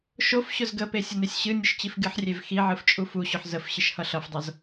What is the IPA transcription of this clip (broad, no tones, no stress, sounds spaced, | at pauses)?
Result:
ʃ o f ɕ ʊ z ɡ ə p e sʲ ə n e sʲ ɕ ɨ nʲ ʊ ʃ t͡ɕ i f ɡ ɨ ħ rʲ e v x i ʕ ɨ f t͡ʃʼ u f u ɕ ʊ ħ z ə f ɕ ɨ ʃ h ʌ ɬ ʌ f dˤ ʌ z